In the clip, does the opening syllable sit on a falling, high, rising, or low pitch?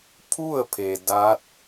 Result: falling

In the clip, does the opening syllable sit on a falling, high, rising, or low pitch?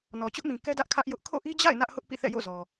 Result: low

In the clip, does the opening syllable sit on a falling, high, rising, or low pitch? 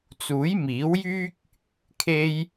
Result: rising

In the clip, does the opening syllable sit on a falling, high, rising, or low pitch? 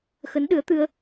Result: rising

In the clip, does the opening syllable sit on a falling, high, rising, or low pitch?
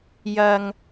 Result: low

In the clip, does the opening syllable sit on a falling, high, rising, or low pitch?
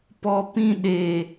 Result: low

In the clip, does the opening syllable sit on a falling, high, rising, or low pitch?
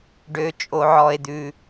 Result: low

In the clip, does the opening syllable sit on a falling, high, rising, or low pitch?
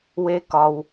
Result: high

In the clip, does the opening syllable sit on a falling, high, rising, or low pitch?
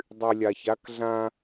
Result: low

